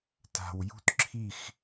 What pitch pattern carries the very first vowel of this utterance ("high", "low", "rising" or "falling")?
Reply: low